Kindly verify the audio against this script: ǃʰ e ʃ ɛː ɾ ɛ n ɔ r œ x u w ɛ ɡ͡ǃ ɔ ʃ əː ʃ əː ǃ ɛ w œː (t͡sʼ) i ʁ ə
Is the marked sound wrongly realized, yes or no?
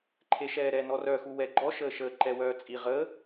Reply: no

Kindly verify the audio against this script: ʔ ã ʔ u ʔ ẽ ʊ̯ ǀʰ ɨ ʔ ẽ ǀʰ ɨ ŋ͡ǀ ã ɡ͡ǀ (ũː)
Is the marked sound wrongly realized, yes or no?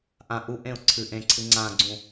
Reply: yes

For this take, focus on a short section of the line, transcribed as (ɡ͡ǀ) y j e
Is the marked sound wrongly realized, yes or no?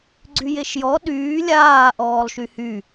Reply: no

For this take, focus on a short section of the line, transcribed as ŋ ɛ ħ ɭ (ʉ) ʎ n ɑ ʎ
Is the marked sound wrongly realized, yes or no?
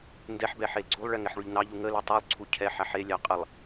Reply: no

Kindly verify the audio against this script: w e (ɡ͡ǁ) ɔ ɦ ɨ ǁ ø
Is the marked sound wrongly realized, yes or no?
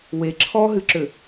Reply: yes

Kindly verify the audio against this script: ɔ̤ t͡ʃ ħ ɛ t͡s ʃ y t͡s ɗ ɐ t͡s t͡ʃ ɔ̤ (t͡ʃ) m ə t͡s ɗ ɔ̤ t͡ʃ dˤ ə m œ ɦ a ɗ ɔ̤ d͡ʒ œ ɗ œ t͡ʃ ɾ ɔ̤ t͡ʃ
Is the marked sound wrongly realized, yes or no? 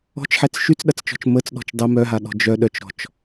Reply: no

